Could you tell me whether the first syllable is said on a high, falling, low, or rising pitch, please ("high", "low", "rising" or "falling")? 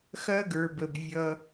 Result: high